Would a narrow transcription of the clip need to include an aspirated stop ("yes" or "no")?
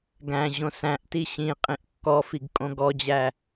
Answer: no